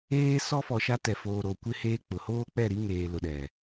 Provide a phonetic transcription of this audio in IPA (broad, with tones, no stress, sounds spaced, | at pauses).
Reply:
eː˦ s ɔ˦ f ɔ˨ ʃ a˦ t ɛ˨ f oː˨ ɾ oː˨ kʷ ɪ˦ h eː˦ k͡p ʊ˨ h oː˦ k͡p ɛ˦˨ ɾ i˦ ŋ eː˨ l ʊ˨ ɗ ɛ˨